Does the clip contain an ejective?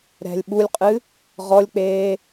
yes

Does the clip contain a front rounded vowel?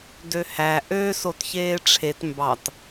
yes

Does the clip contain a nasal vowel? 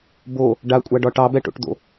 no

